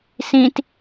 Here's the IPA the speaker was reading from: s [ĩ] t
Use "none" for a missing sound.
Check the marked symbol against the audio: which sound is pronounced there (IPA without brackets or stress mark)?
ĩ